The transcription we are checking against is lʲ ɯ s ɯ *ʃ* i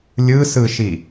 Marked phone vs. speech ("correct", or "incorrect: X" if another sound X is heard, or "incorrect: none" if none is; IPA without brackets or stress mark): correct